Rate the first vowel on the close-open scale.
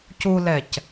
close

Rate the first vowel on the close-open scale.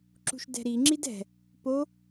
close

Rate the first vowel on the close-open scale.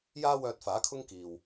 open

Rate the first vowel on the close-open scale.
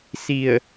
close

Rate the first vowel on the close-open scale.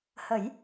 mid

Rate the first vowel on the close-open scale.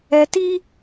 mid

